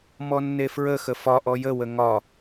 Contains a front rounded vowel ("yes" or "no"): no